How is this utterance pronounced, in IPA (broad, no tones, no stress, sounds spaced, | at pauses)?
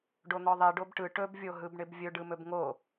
ɖ o n̪ ɔ ðˤ i ɖ o b ʈ ɯ ʈ ɵ b vʲ o ɦ ɯ b ɳ ɪ b vʲ ɵ ɖ ɯ m ɵ b ŋ o